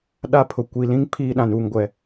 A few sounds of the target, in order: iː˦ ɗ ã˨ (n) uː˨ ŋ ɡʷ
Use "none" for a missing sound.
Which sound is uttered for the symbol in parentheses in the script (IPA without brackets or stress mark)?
n